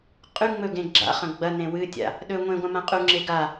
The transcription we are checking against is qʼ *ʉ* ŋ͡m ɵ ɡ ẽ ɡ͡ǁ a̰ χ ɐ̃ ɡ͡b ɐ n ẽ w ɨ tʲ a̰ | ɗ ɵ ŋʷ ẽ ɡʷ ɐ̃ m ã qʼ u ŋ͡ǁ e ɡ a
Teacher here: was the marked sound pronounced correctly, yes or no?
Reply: yes